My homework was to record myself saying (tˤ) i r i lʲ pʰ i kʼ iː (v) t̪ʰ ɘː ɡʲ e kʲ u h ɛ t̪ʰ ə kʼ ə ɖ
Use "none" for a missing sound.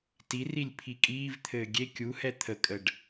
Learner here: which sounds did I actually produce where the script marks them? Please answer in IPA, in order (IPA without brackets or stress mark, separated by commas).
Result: t, v